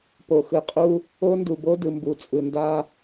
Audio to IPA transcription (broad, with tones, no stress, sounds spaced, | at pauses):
p o˨ x ɯ˨ qʼ u˦ | o˦ n d u˨ b o˦ d ɯ˨ m b u˨ t͡sʼ ɯ˨ n d a˦